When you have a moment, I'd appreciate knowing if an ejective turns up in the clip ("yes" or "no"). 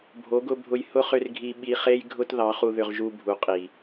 yes